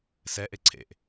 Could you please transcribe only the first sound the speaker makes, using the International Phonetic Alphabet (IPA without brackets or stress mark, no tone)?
s